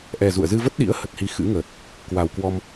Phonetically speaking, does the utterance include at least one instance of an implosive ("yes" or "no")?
yes